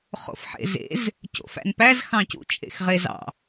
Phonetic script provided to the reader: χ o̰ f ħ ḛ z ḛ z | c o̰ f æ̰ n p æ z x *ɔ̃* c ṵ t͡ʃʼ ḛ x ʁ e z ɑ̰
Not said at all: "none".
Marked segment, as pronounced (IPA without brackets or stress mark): ɑ̃